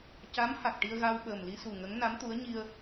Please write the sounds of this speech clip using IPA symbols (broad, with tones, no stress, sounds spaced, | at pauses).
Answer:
c a˧˥ m h a˨˩ k̚ ʈ i˧ ə̯ ɣ a˧ w ɓ əː˨˩ m l i˧ s u˨˩ ŋ ə˧˥ ŋ n a˧˥ m t̪ u˧˥ ə̯ ɲ i˧ ə̯